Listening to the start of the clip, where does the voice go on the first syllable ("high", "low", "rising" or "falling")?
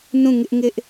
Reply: falling